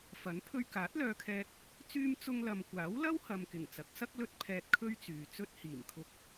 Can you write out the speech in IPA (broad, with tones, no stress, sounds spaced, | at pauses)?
f ɐ˨˥ n pʰ ɵ˧ ɥ k aː˨˥ t̚ l œː˧ kʰ ɛː˧ k̚ | t͡s yː˧ m t͡s ʊ˧ ŋ l ɐ˨ m kʷ aː˨˥ w l ɐ˥ w h ɐ˨ m k ɪ˨˩ ŋ t͡s ɐ˨˥ k̚ s ɐ˥ k̚ l ɵ˥ t̚ pʰ ɛː˧ t̚ kʰ ɵ˥ ɥ t͡s yː˨ t͡s ɵ˥ t̚ h iː˨˩ m kʰ ʊ˧ k̚